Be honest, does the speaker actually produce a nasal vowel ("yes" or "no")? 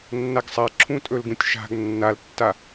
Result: yes